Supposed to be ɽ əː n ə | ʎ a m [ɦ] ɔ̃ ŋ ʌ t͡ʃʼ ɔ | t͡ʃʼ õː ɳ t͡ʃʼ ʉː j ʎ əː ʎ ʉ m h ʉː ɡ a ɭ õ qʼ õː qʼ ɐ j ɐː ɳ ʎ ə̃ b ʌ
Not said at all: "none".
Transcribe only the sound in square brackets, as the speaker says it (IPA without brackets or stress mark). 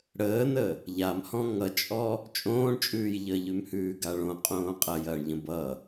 h